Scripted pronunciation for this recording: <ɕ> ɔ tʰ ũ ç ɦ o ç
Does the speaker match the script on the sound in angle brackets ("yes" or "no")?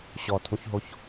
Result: yes